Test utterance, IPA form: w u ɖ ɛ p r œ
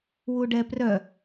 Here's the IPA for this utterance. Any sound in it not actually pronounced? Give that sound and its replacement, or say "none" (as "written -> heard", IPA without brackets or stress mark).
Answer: none